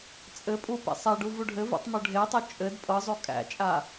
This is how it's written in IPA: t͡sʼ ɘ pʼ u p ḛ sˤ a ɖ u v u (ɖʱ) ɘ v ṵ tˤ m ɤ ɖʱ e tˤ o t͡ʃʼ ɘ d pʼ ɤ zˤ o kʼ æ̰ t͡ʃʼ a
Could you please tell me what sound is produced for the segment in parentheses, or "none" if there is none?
ɖʱ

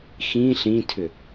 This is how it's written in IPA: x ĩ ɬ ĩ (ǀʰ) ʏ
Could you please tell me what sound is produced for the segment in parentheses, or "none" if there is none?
tʰ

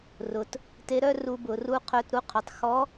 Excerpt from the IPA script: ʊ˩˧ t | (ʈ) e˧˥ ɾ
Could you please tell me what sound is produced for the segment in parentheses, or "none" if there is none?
t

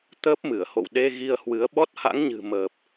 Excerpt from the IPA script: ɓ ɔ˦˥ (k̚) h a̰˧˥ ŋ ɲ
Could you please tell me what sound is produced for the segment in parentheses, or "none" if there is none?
t̚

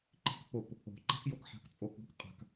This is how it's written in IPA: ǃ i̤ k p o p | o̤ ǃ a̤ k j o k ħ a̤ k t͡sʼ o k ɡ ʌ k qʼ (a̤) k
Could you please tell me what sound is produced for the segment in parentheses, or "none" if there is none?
a̤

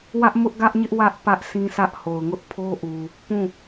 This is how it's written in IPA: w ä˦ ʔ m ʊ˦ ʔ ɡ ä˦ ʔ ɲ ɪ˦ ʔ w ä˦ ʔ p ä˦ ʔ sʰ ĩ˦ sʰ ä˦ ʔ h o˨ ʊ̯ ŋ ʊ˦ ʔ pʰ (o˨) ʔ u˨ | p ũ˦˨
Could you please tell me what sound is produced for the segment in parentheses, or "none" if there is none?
o˦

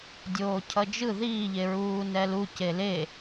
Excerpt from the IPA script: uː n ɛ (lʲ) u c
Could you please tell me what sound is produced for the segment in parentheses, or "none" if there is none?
l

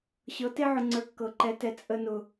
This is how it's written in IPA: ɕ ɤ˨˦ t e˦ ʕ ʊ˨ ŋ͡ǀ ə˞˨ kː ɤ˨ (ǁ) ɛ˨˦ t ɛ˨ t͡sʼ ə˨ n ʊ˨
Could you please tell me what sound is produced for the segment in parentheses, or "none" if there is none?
ǃ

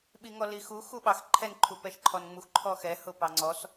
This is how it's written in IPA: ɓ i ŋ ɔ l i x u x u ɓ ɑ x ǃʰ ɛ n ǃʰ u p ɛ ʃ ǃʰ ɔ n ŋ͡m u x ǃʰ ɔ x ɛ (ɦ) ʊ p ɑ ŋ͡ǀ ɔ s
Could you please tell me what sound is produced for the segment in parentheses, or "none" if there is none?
h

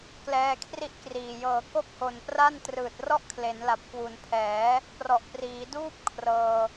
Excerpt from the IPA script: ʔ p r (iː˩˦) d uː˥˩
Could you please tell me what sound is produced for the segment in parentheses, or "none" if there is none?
iː˩˦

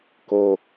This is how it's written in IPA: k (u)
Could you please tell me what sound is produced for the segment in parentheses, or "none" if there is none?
o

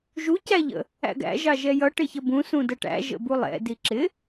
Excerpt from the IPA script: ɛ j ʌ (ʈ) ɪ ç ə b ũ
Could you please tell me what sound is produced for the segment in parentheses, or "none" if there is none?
ʈ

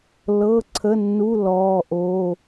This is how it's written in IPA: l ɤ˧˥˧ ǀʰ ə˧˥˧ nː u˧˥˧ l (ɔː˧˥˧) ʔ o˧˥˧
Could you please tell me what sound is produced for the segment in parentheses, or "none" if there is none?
ɔː˧˥˧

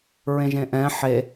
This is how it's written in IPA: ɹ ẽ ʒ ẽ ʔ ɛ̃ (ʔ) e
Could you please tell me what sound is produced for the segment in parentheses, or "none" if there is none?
ħ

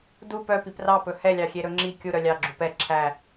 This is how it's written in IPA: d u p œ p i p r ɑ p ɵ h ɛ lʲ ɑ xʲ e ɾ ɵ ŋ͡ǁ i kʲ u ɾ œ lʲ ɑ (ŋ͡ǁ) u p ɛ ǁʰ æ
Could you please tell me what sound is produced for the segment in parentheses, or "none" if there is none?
ɡ͡ǁ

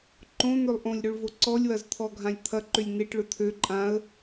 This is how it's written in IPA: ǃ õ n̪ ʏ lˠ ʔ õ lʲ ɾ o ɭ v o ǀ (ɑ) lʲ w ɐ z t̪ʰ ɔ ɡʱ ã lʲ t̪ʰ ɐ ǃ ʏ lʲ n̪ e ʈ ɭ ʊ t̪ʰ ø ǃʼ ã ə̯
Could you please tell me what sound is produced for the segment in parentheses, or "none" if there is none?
ɔ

